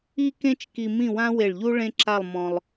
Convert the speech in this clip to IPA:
i˥kẽ˥t͡ʃki˧ mĩ˥˧wã˥ we˧˩ɭʎu˥ ɭẽ˥ǁa˥˧lˠmɔ̃˧lˠ

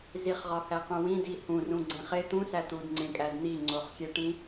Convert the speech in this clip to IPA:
ziχʁɒhæqũ wĩdi hũrũɡ͡ǀẽχ e t̪ũsæ t̪udŋ͡ǀẽkʼæd n̪iŋ͡ǀoχxʲeʈĩ

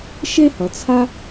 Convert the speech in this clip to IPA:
ʃe˥hʌ˩ t͡sʰa˥

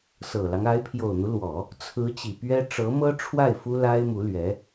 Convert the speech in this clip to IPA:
sɤ˨˩lɑ˦ŋ a˧˥ɪ̯pʰjo˨˩ʊ̯n̪u˦lwɔ˨˩˦ | t͡sʰɹ̩˧˥ t͡ɕi˨˩ pɥɛ˥ ʈ͡ʂɤ˧˥mɤ˥ʈ͡ʂʰwa˥˩ɪ̯ fu˥la˥ɪ̯ mu˧˥lɥɛ˧˥

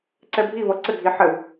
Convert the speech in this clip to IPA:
ǀɛbʱivʌ ǀɘɡʱi ħɘw

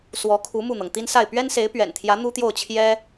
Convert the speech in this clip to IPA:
swɔ˧˥kʰu˧˥ mu˥˩n̪ɤ˩ŋ t̪i˥nsa˥˩ɪ̯ pɥɛ˥nse˧˥ɪ̯pɥɛ̰˨˩nt̪ʰjä˧˥ n̪u˥t̪jo˥˩ʊ̯t͡ɕʰjɛ˥

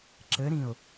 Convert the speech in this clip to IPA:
ǁɘɾĩʊ̯

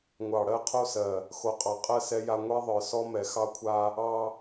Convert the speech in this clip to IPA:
ŋʷɑ˨ɽɜ˦qʰo˦ sɜ˨ | xo˨qʼɑ˨qʼɜ˦˨ sɛ˦ja˦ ŋʷɛ˦ðˤə˞˨sɔ˦ mɛ˨xɑ˦kʷʰa˦ | ɑ˦

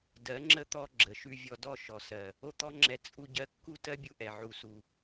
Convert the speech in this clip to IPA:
dɜ˨˦ŋ͡ǁə˦t̪ɔ˧ ɡ͡ǁə˨ʃʉ˧vʲɔ˧dɔ˦˨ ʃɔ˨sɜ˨ | o˦t̪ɔ˦ŋ͡ǁɛ˧ t͡sʼu˧ɟɜ˧ kːu˦˨tɜ˦bʲu˧ʔɛ˨ ʕu˧su˧

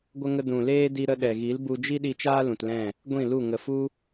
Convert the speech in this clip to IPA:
ɡʷə˧ŋə˧ dũ˨leː˦ di˧ɾə˧ɗɛ˨ɣi˨˦l bu˧d͡ʒi˦ ɗi˧t͡ʃaː˦ lũ˨tlɛ̃˦˨ | ɡʷĩ˦˨lu˦˨ ŋə˨fu˦

